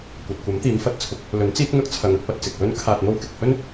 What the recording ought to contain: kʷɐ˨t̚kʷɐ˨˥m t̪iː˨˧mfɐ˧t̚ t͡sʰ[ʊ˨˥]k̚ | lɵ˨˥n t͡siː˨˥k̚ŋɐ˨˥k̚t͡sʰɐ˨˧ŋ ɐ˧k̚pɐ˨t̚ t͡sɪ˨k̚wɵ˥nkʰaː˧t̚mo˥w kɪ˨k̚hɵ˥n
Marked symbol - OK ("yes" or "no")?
yes